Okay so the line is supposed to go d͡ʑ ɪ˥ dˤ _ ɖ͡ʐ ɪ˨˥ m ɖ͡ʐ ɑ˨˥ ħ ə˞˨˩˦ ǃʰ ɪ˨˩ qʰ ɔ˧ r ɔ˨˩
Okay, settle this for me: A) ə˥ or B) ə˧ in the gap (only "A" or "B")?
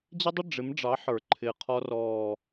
A